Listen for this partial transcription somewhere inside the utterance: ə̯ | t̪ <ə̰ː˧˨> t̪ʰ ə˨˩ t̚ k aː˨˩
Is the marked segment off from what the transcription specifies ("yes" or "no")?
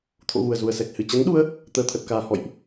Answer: yes